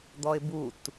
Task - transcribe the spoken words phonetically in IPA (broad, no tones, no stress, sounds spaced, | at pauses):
d̪ ɔ ɪ̯ b u t